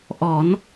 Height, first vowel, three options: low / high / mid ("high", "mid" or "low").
mid